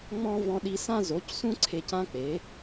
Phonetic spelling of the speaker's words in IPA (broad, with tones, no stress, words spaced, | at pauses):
ŋ͡mɔ̃˧ vɔ̃˧ɗi˧sã˦ zo˨˦csũ˦ǀʰe˧c ã˦k͡pe˨˦